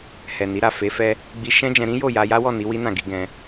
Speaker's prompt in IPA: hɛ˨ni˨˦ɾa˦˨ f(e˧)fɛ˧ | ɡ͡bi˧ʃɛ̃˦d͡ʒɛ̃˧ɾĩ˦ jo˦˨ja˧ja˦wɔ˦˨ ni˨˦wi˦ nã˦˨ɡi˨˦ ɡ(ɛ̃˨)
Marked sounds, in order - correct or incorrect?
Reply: incorrect, incorrect

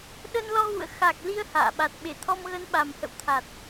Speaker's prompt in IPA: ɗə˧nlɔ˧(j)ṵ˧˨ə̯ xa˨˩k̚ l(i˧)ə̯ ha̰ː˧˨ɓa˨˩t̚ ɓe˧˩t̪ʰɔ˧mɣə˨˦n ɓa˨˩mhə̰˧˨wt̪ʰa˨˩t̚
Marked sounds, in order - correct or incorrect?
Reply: incorrect, correct

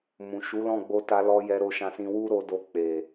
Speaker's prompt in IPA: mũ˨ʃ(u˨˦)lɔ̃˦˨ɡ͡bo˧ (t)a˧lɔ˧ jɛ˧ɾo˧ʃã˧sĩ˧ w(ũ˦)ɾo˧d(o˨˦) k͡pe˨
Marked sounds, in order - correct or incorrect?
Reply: correct, correct, incorrect, incorrect

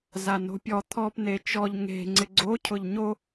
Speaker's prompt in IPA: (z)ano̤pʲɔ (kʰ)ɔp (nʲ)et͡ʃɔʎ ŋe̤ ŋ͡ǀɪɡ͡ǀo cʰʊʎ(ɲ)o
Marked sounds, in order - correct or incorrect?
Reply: correct, incorrect, incorrect, correct

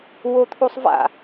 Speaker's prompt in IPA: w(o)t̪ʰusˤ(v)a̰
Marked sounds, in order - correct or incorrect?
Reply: correct, correct

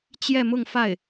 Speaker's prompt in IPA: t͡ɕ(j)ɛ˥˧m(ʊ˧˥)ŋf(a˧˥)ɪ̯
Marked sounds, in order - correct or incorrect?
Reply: correct, incorrect, incorrect

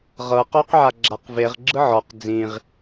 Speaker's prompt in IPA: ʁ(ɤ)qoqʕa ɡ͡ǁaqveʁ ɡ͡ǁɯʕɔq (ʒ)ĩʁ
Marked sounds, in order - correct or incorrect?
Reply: correct, incorrect

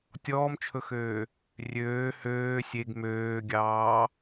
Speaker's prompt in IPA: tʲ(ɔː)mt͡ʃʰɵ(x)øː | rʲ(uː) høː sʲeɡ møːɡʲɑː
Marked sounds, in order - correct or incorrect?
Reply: correct, correct, incorrect

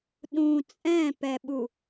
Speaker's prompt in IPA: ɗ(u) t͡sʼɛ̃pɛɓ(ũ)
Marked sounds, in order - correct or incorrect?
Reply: incorrect, incorrect

